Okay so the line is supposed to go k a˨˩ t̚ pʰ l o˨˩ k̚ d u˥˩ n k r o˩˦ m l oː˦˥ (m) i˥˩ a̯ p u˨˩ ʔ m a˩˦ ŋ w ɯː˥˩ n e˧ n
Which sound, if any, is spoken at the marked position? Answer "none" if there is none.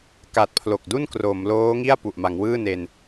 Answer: ŋ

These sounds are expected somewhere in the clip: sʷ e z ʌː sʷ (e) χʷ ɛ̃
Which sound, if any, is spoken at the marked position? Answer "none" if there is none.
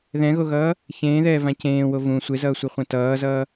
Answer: i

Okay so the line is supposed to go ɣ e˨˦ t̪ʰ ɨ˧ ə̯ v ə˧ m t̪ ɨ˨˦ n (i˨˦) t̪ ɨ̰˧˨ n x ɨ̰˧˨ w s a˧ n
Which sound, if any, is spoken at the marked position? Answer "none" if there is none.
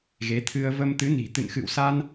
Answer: i̤˨˩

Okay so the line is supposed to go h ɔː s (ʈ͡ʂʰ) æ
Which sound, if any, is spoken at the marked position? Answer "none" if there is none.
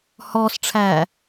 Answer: ʈ͡ʂʰ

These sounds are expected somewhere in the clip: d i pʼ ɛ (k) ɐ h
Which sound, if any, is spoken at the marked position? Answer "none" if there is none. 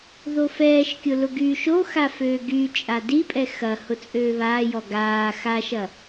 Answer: x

